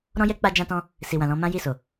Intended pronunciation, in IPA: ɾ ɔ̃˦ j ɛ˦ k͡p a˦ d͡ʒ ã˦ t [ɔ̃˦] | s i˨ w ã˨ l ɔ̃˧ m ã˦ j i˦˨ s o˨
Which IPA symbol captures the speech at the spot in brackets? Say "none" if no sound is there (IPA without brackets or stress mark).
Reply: ɔ̃˦